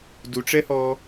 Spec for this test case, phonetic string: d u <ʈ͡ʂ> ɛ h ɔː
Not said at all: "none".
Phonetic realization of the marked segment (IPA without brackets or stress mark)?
ʈ͡ʂ